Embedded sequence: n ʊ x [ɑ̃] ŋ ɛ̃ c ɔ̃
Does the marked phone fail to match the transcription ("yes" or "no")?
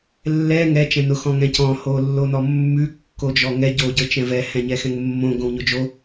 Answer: yes